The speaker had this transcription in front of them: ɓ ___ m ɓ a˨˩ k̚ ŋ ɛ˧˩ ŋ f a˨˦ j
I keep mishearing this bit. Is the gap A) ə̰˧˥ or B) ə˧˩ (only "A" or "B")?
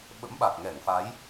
A